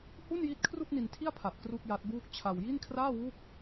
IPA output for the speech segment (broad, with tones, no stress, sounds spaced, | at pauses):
h u˥˩ n j i˦˥ t̚ kʰ r u˥˩ k̚ n i˧ n tʰ i˥˩ a̯ pʰ a˨˩ t̚ k r u˥˩ k̚ j a˦˥ t̚ b uː˥˩ k̚ t͡ɕʰ a˧ w j i˥˩ n kʰ r aː˥˩ w u˥˩ k̚